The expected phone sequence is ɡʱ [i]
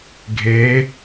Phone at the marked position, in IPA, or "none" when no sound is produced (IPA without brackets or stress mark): e